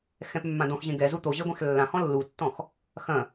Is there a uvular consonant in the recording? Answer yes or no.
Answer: no